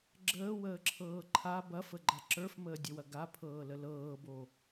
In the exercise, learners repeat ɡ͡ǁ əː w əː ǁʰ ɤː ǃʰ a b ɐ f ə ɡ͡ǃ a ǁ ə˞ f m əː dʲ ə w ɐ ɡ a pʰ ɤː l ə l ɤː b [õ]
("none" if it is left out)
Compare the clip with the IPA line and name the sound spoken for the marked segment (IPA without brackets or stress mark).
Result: o